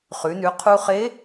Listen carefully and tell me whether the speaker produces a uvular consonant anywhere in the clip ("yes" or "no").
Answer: yes